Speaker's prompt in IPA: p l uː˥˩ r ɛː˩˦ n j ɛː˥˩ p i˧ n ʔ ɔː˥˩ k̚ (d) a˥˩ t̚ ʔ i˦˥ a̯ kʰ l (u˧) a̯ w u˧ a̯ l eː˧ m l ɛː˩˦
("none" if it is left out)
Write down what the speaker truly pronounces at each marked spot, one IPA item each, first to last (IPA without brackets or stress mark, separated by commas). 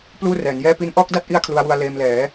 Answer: d, u˧